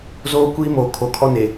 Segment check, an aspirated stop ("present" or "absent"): present